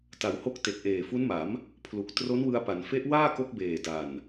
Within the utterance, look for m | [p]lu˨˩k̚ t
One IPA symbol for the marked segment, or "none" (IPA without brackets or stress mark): pʰ